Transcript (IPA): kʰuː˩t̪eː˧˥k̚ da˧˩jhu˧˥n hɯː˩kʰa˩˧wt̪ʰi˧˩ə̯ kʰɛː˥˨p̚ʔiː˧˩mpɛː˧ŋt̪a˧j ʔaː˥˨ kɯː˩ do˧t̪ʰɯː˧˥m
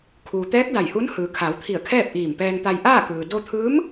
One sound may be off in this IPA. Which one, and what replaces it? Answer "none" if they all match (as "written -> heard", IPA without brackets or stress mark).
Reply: eː˧˥ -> ɛː˧˥